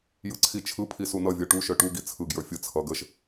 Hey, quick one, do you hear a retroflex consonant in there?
yes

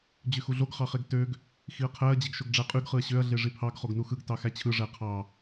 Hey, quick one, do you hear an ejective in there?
yes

